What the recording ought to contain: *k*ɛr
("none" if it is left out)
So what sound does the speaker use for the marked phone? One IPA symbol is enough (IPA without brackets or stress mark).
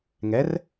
ŋ